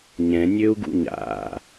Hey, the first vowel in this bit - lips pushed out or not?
no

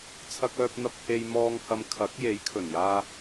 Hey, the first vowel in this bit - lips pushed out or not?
no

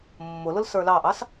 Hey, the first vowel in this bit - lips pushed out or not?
yes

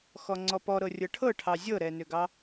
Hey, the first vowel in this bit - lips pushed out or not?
yes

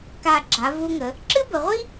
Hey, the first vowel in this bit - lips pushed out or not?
no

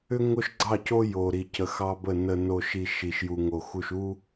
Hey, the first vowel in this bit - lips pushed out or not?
yes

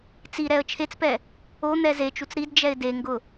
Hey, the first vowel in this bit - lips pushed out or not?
no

